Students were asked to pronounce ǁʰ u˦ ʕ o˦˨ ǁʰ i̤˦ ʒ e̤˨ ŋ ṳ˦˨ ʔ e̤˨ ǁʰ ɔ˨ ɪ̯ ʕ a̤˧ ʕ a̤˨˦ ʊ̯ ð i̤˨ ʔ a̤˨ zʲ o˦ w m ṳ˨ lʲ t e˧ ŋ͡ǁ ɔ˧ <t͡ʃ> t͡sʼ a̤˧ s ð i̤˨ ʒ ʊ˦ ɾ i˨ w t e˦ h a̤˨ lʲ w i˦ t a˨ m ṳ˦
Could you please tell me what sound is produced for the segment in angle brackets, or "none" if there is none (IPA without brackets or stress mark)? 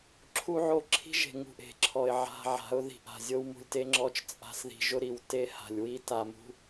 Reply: t͡ʃ